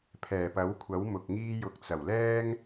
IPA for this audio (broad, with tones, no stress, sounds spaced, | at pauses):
pʰ ɛː˨˩ p ɐ˨˥ w kʷʰ ɐ˨˥ w m ʊ˨ k̚ ŋ iː˧ j ʊ˨ k̚ t͡s ɐ˨˩ w l ɛː˥ ŋ